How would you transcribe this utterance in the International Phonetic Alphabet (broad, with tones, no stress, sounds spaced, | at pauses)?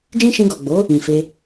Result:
d͡ʒ ĩ˦ ʃ ĩ˧ ɡ ɔ˨ ɡ͡b o˨˦ | ĩ˨ f e˧